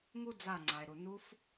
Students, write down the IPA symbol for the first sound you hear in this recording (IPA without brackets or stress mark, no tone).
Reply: ŋ